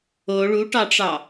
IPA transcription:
o ɭuʈɑʈ͡ʂɑ

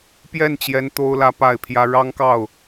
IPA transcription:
pjɛ˥˩nt͡ɕjɛ˧˥n t̪o˥ʊ̯lä˥pa˥˩ɪ̯pʰjä˥ ɻɑ˥ŋkɑ˥˩ʊ̯

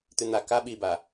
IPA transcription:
t̪ʉn̪a ka ɓiba

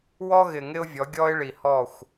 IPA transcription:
wɔ˦ɣɪ˨ ŋɪ˦ʊ̯vʲɔ˨˦ ɡʲɔ˦ɪ̯ ɭi˨hɔ˦˨xʷ

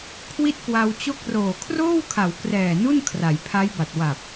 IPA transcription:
kʰwi˥˩t̚kwa˧wt͡ɕo˥˩k̚ roː˨˩kʰroː˥˩wkʰa˩˦wkrɛː˨˩ nu˥˩n kʰra˩˦j pʰa˦˥jba˨˩t̚ wa˨˩p̚

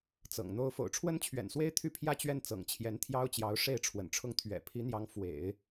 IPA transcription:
t͡sɤ̰˨˩ŋn̪o˥ʊ̯ fo̰˨˩ʊ̯ʈ͡ʂʰwə˥nt͡ɕʰɥɛ̰˨˩nswe˥ɪ̯ t̪ʰy˥˧pʰjä˥˧t͡ɕɥɛ˥˩n t͡sɤ̰˨˩ŋt͡ɕʰjɛ˧˥nt̪ʰjɑ˥ʊ̯t͡ɕjɑ˧˥ʊ̯ ʂe˥˩ɪ̯ ʈ͡ʂʰwə̰˨˩nʈ͡ʂʰʊ˥˩ŋ t̪ʰɥɛ̰˨˩ pʰi˧˥n̪jɑ˧˥ŋ fwḛ˨˩˦ɪ̯

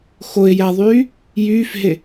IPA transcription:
xoɪ̯jæðˤyː | jyːfɦe

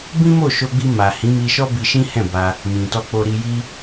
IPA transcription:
bĩ˦mo˦˨ʃo˧ɡ͡bi˧ ma˨ hĩ˨˦mi˧ʃɔ˦ bi˧ʃĩ˦hɛ̃˦˨ ba˧ | mĩ˨tɔ˧ k͡po˧ɾi˧ji˦

